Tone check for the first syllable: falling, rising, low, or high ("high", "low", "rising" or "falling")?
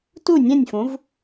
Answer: falling